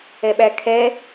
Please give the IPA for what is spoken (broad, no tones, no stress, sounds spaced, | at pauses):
ɛ ɓ æ kʰ ɛ